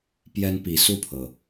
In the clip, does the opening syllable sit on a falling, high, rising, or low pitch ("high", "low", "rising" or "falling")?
high